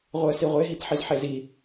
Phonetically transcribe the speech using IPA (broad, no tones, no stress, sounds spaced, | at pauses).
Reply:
ʁʷ ɯ ə̯ s i ʁʷ e ɦ i t ħ i z ħ e z i